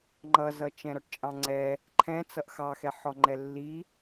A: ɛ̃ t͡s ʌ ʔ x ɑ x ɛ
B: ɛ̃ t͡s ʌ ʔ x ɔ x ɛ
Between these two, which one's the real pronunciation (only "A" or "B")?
A